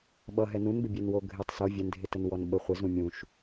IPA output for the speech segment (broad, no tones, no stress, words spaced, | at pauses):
ɓʌɦɛ nũnbɪbʲɛnwo ɡʱɪtˤ so vʲɛndʱɪtənwɔn ɓə χʷɪzũ mʲũʃ